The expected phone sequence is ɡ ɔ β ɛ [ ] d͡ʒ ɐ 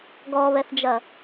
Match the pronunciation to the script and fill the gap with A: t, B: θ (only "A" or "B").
B